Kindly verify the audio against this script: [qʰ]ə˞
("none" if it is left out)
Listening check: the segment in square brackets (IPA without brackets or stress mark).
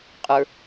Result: qʼ